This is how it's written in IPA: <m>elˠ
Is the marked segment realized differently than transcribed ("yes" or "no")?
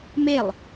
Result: no